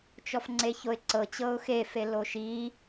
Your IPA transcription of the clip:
t͡ʃ ɔ f ŋ͡ǀ e ç o ɪ̯ ǀ ɤ t͡ɕ ɤ ʊ̯ x e f e l o ʃ i

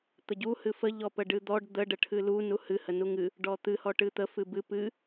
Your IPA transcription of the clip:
t̪ ə ɟ u h ɨ f ə ʎ ɔ p ə ɖ ɨ d̪ ɔ ɖ d̪ ə ɖ ə ʈʰ ɨ l u n u h ɨ h ə n u ŋ ɨ | ɖ ɔ t̪ ɨ h ɔ ʈ ɨ t̪ ə f ɨ b ɨ p ɨ

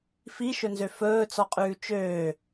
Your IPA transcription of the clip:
f i ʃ ɵ n z ø f ɵː t͡s ɔ qʼ ʉː t͡ʃ øː

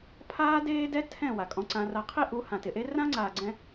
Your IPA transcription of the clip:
pʰ aː˦ d eː˦ d ɛ˦ tʰ ɛ̃˦˨ w a˨ kʼ ɔ̃˧ ǀ ã˧ r a˧ qʰ i˦ ʔ u˨˦ h ã˨ t ɪ˨ ʔ e˦ r ã˦ ŋ͡ǀ aː˨ ɡ͡ǀ ɛ̃˧

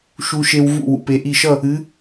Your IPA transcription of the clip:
ʃ u˧ ʃ e˧ w v ṵ˧˩ w ṵ˩ p e˩˧ ʔ i˧˩ ʃ ʌ˥˨ | ɨ˩˧

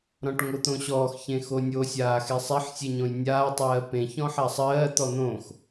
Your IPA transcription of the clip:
ɾ ɔ̃ ʈ ŋ o t̪ õ ɕ ɔː x ç ẽ x o nʲ o sʲ aː x e sˤ ɛ ħ sʲ e ɲ õ j nʲ aː tˤ ɜː p ẽ ç ɔ̃ ħ a sˤ ɜː t̪ ɔ n̪ õ x

